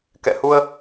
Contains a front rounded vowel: no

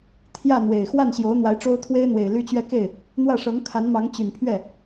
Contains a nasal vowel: no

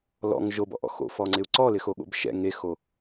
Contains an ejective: no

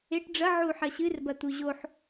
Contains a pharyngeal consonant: yes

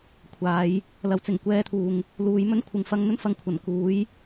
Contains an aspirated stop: yes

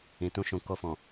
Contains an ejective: no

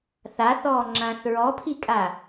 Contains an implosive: no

